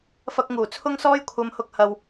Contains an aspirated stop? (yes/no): yes